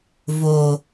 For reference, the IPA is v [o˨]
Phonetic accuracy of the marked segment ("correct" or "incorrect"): correct